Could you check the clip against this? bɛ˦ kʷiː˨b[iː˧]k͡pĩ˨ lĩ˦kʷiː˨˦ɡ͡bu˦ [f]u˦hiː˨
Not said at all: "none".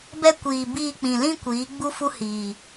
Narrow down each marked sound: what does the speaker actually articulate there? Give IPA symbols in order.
iː˧, f

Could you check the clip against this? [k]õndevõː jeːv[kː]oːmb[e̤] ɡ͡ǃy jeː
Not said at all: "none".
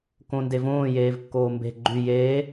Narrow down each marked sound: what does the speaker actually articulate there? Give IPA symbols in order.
k, kː, e̤

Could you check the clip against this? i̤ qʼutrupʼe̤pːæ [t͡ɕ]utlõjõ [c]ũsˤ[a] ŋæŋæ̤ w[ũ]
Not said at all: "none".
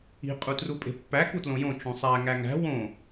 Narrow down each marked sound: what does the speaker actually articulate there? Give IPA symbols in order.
k, t͡ʃ, æ, õ

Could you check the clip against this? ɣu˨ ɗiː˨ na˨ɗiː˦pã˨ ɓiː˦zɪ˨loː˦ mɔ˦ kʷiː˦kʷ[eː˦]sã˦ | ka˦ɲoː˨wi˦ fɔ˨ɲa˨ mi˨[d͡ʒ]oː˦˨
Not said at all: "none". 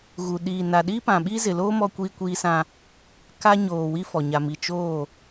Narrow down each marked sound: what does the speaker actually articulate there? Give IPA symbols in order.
iː˦, t͡ʃ

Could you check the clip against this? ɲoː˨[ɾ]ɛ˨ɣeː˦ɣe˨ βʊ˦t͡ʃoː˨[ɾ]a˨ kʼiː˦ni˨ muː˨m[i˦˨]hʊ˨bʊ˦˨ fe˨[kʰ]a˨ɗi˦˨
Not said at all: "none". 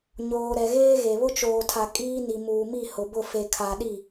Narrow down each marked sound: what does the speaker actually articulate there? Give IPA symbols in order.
ɾ, tʰ, i˦˨, kʰ

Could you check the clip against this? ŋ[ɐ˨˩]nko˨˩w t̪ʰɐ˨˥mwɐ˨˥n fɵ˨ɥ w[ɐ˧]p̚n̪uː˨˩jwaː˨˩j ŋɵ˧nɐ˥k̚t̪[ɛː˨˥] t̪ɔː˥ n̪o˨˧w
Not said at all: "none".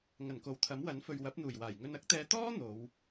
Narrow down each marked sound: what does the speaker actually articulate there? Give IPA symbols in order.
ɐ˨˩, ɐ˨˥, ɛː˧

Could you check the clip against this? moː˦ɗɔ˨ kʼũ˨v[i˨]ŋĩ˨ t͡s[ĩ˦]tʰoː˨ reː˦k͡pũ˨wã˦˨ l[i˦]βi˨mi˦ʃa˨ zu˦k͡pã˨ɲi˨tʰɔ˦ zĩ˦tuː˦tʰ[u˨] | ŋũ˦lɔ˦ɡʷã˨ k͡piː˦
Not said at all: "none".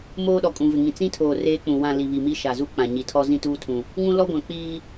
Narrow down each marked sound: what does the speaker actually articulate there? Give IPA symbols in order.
ɪ˨, ĩ˦, i˨, ũ˨

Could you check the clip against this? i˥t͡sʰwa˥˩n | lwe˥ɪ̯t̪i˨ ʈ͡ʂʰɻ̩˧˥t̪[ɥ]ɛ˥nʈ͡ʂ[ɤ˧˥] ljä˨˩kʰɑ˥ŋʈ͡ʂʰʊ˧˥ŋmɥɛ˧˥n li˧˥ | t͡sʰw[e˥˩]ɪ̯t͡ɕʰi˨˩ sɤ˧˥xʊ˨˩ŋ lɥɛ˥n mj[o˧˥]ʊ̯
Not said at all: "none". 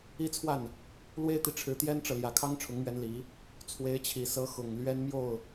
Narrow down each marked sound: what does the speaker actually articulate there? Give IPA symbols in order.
j, ɤ˨, e˧˥, o˥˩

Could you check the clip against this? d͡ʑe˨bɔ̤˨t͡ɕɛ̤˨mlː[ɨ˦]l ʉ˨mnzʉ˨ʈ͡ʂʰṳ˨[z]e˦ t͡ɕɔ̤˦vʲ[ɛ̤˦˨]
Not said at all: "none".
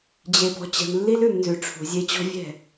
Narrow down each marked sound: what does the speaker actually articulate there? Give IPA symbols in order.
i˦, zʲ, ɛ̤˦˨

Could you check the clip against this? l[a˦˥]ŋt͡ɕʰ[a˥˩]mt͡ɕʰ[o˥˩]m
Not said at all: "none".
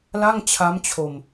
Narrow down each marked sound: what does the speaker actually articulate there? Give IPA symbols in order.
a˥˩, a˦˥, o˧

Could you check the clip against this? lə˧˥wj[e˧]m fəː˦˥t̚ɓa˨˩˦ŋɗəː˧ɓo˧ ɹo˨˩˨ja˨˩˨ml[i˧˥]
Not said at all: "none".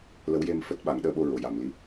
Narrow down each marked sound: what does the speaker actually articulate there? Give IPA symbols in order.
e˧, i˧˥

